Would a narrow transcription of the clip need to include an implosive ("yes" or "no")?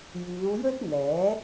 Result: no